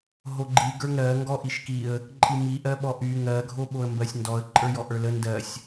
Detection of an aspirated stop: absent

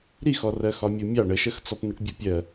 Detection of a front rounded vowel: absent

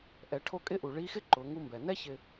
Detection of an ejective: present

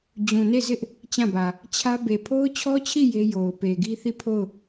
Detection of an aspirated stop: present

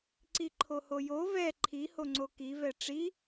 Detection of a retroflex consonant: present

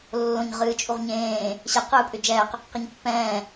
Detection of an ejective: present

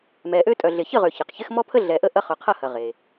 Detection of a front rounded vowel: present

